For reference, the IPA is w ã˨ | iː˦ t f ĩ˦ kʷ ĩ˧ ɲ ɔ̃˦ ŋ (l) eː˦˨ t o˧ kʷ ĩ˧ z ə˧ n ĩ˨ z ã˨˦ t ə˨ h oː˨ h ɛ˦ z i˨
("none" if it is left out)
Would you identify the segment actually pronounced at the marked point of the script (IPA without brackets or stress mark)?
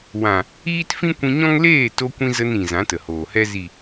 l